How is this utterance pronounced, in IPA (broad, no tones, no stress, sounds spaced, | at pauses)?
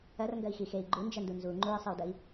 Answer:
ɐ r ŋ ɡ ɐ i̯ x i x e i̯ ɡ͡ǃ u n d͡ʒ ɐ n d u n z u ŋ͡ǃ u i̯ sˤ ɨ u̯ d ɐ i̯